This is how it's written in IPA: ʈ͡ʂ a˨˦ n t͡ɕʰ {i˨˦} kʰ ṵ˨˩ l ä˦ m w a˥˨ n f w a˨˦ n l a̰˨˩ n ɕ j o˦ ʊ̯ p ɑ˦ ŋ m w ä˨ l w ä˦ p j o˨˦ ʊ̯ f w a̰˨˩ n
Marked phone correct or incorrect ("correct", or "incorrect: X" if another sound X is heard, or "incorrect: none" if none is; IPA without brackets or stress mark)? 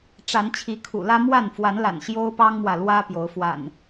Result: correct